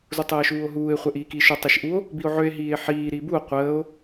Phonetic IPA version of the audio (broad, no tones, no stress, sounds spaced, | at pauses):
z u tˤ əː ʃ uː o̯ ɦ uː e̯ χʷ ɛ ʔ iː k iː ʃ œ tˤ i ʃ ʔ u o̯ | b i o̯ ʕ ø e̯ ɦ iː e̯ ħ iː ɾ iː b u o̯ qʷ əː o̯